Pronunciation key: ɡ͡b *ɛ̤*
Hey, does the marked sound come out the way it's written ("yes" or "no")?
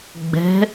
yes